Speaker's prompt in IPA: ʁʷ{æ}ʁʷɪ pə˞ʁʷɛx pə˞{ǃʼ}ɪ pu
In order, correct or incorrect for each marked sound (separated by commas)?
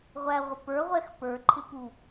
correct, incorrect